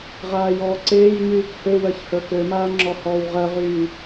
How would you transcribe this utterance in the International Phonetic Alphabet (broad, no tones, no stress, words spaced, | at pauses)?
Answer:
ʁaːjɔːǀeːjɲyːk høwɜç hə˞kømaː ŋ͡ǁɔhɔːwʁɜʁyː